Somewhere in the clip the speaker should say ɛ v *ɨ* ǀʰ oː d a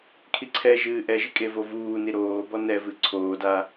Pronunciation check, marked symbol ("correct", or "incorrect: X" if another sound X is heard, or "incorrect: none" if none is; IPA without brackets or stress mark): correct